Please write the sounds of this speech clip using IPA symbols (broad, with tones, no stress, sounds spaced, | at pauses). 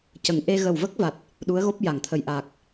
c ə˨˩ ŋ ʔ e˧ ɣ ə˨˩ w v ə˦˥ k̚ v a˨˩ t̚ | ɗ u˧˥ ə̯ ɣ o˦˥ p̚ j a˨˩˨ ŋ t̪ʰ ə˨˩ j ʔ aː˨˩ k̚